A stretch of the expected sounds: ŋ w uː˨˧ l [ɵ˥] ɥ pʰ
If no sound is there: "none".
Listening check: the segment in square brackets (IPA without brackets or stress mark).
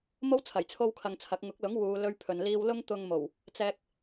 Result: ɵ˥